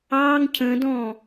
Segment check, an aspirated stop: present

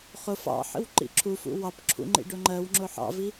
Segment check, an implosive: absent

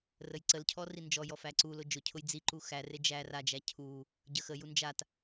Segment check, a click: present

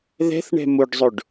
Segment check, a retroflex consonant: present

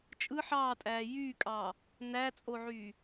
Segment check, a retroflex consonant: absent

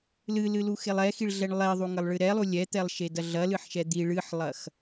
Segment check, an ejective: absent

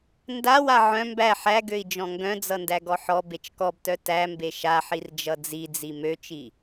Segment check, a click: absent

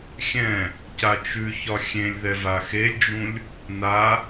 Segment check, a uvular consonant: absent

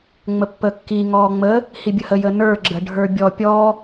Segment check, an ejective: absent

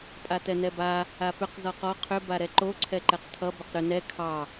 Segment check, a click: present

